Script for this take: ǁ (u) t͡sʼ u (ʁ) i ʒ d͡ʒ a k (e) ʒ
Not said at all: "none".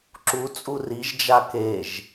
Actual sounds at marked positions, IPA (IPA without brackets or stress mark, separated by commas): u, r, e